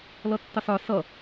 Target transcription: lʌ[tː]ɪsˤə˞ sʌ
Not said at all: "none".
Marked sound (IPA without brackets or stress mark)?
tː